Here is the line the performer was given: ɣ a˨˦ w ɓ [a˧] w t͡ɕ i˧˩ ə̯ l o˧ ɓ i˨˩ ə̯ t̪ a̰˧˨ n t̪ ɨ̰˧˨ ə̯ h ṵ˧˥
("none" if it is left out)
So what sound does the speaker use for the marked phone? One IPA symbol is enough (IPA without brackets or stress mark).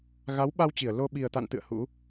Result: a˧